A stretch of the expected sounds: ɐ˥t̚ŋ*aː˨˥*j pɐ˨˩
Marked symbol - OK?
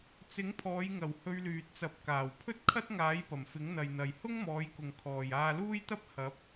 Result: yes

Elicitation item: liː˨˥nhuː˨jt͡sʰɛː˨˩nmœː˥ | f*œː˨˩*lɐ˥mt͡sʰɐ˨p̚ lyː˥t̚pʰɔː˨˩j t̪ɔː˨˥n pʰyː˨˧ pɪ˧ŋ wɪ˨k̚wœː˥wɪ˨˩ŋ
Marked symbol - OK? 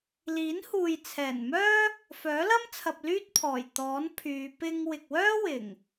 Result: no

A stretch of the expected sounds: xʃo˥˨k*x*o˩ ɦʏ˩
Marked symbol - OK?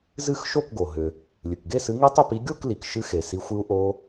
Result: no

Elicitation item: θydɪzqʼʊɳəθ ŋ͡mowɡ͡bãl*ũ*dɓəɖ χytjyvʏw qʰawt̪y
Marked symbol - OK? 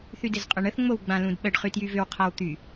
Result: yes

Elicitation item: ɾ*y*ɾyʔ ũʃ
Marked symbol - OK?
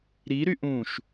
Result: no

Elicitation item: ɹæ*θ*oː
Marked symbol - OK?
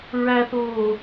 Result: yes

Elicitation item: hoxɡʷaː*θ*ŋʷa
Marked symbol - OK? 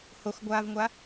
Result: no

